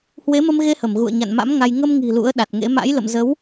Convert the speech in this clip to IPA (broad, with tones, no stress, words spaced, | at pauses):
hwe˨˦mə˧mɣe˧hə˧˩m ɣṵ˧˨ə̯ɲa̰˧˨nma̰˧˥m ŋa˧j ŋə˧mŋi̤˨˩ lṵ˧˥ə̯ɗa˨˩t̚ŋḛ˧˥ ma̰˧˥jlə̰˧˨mzə˨˦w